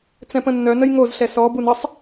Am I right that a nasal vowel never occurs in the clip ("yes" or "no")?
no